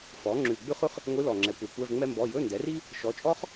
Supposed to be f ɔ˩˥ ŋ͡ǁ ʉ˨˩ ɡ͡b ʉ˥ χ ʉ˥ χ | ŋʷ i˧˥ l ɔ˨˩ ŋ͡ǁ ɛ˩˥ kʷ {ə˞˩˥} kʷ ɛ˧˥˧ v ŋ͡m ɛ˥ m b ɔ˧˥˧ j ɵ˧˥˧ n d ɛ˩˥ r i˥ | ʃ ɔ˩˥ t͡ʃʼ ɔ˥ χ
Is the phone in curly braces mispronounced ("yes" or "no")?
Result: no